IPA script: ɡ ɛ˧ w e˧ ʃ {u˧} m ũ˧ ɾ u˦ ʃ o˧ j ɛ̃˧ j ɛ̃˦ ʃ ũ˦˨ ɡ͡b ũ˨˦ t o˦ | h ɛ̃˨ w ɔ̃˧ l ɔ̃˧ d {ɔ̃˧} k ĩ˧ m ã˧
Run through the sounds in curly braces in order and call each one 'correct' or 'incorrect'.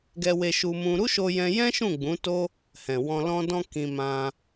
correct, correct

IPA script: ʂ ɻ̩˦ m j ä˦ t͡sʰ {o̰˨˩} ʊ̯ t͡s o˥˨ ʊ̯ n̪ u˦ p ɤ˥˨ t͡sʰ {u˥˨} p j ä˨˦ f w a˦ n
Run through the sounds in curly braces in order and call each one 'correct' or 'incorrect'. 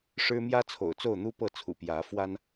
correct, incorrect

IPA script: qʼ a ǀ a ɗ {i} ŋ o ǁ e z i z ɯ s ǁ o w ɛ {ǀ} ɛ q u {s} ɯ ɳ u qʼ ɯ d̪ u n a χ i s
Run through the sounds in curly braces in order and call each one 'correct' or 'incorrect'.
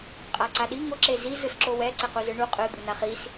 correct, correct, incorrect

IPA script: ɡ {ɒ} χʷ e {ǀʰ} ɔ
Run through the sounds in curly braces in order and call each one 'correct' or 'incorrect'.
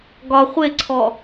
correct, correct

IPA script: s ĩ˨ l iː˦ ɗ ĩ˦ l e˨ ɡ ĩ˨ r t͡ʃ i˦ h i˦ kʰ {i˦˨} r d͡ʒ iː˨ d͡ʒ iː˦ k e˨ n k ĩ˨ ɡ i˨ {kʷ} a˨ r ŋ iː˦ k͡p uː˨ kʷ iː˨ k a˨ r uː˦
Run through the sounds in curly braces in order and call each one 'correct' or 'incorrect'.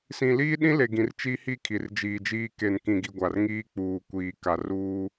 incorrect, incorrect

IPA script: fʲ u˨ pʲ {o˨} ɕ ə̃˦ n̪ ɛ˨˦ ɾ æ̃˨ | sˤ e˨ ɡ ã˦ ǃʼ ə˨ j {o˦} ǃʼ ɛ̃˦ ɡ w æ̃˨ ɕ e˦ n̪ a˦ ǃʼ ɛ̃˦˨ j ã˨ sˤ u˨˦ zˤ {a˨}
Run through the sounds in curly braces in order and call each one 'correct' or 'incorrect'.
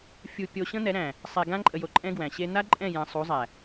correct, incorrect, incorrect

